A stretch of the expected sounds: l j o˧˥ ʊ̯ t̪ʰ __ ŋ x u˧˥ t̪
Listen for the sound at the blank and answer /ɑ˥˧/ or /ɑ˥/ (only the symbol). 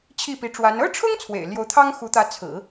ɑ˥